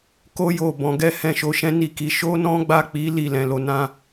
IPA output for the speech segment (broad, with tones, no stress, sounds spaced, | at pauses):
k o˦ j o˦˨ b ɔ̃˨˦ ɡ ɛ˦ h ɛ̃˦˨ ʃ o˨˦ ʃ ɛ̃˦ n i˦˨ k i˨˦ ʃ o˦ n ɔ̃˦ ɡ͡b a˦˨ k͡p i˨˦ l i˦˨ l ɛ̃˨ l o˧ n ã˧